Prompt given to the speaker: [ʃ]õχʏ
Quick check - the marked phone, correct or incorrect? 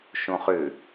correct